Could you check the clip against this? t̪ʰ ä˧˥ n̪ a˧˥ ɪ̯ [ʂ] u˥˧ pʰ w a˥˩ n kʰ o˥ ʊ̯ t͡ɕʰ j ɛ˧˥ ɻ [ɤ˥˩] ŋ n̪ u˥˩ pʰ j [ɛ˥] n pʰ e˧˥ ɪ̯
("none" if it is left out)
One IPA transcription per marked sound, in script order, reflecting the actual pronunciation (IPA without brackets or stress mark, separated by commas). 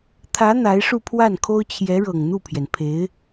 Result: ʂ, ɤ˨˩, ɛ˩